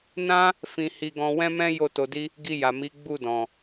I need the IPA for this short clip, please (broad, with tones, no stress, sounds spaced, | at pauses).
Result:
n ã˦ | f ĩ˧ h i˧ ɡ ɔ̃˧ w ɛ̃˦ m ɛ̃˦ j o˦˨ t o˧ d i˦ | ɡ i˧ j a˨ m i˨˦ ɡ͡b u˦˨ d ɔ̃˨